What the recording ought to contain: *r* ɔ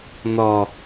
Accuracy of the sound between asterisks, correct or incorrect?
incorrect